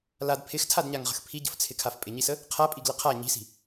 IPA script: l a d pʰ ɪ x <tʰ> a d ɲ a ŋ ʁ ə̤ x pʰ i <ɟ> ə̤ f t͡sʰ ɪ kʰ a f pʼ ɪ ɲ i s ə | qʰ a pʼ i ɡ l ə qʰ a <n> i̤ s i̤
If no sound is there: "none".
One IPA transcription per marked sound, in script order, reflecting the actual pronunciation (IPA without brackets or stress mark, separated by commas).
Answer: tʰ, ɟ, ɲ